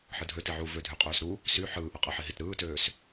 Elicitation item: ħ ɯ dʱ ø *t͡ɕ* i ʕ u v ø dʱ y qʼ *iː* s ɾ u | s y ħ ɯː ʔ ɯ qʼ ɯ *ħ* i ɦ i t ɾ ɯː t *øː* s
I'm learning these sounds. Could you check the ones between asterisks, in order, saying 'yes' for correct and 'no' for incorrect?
no, no, yes, yes

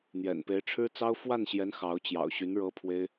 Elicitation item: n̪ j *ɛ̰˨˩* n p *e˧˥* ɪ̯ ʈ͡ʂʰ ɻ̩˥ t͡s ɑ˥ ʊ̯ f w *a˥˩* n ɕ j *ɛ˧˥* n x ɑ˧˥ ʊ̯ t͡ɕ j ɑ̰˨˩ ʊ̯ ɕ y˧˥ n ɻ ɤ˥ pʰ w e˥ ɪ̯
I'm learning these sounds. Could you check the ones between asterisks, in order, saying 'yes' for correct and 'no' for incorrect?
yes, yes, yes, yes

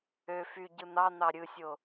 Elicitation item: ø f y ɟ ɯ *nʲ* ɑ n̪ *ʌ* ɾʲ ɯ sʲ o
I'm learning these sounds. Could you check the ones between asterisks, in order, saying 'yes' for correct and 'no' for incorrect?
no, no

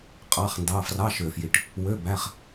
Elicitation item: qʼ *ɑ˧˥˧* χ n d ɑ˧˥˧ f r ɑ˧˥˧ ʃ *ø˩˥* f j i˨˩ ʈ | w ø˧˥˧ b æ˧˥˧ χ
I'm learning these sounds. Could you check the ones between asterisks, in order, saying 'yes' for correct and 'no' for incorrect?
yes, no

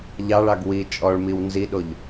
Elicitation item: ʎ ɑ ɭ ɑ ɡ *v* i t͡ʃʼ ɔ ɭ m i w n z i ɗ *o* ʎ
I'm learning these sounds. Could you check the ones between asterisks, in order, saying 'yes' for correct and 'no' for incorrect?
no, yes

